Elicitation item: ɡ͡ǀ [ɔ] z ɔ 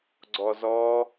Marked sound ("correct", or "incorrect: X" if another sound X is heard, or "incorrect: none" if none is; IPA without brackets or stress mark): correct